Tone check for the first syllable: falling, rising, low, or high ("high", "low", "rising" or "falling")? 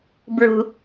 low